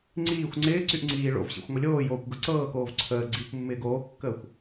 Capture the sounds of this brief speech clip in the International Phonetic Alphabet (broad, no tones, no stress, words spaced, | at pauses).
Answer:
ŋ͡ǀiːxʷ ŋ͡ǀɪːǀyʔ ŋ͡ǀiːɭo̰vɕḭxʷ ŋʷɪlʲoːjoːkʷ ɡɤǀɤːkoːv ǀʰəː ɡ͡ǀiːkʷmːɪːɡoːkːəːxʷ